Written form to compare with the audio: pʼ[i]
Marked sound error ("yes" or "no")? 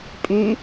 yes